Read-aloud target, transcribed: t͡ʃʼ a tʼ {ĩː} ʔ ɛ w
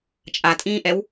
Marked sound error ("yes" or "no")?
no